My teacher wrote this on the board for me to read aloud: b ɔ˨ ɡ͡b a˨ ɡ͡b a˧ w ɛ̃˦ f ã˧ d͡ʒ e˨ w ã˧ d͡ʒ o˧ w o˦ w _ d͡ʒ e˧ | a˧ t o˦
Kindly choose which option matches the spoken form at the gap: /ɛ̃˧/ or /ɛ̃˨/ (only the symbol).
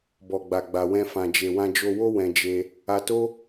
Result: ɛ̃˧